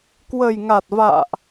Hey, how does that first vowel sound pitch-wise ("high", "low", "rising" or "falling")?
low